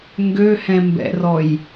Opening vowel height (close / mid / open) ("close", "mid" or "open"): mid